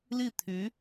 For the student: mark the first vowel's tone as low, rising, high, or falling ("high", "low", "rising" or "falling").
falling